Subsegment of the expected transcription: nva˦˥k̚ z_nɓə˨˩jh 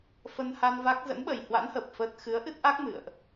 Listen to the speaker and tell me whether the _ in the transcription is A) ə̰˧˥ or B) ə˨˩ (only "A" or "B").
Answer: A